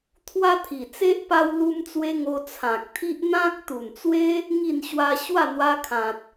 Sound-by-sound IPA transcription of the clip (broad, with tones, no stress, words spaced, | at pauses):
t̪ʰwa˦t̪ʰi˨˩t͡se˦ʔ pa˦w lu˧mt͡swe˧ ŋo˧t͡sʰã˨k̚t̪ʰi˦ʔ n̪ã˦k̚ t̪u˨˩nt͡swe˦ | ŋi˥˧nɕwa˦ ɕwa˥˧n̪wa˧kʰã˨t̚